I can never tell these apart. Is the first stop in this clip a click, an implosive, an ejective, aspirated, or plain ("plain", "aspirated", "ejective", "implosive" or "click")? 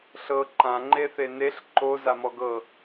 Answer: click